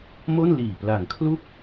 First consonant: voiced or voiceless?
voiced